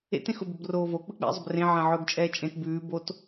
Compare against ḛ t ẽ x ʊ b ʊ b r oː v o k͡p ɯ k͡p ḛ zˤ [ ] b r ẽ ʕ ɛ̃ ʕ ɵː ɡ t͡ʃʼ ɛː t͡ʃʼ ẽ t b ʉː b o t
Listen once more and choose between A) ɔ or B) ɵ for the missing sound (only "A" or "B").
B